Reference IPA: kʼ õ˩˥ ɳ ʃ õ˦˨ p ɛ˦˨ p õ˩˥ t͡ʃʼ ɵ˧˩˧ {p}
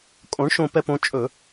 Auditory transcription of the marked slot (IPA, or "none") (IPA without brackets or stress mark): none